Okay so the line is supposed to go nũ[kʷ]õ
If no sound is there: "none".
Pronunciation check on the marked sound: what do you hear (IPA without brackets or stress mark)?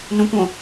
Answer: kʷ